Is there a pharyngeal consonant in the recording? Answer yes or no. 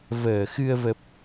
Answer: no